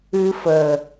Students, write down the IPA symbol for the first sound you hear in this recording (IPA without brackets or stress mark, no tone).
ɨ